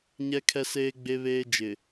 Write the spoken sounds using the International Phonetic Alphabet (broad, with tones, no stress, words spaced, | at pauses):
ɲɛ˦kʰɛ˦seː˦ ɡ͡be˦βeː˦ d͡ʒɪ˨